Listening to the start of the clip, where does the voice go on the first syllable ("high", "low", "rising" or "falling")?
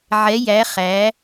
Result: rising